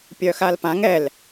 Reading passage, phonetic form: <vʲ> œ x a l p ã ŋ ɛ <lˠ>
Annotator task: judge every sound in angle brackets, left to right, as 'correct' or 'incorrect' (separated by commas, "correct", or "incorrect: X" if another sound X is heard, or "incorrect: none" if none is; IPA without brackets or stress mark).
incorrect: pʲ, incorrect: l